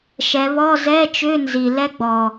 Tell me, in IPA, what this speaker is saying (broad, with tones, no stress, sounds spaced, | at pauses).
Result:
ʃ ɛ˩˧ β ɔ˧˥˧ z ɛ˧˥˧ t͡ʃ ʏ˧˥˧ n z i˨˩ l ɛ˥ ɡ͡b ɔ˨˩